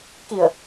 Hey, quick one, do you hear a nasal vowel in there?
no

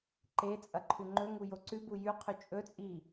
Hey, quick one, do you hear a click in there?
yes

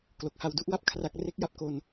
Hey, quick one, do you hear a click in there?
no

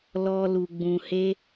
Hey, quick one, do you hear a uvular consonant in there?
no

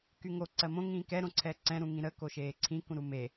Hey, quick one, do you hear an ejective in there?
no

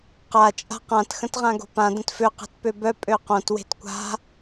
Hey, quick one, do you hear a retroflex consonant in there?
no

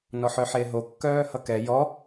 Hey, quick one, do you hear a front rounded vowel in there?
yes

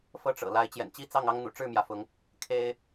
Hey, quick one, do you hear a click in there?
no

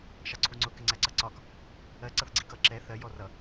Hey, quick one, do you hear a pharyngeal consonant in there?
no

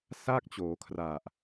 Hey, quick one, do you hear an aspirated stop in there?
yes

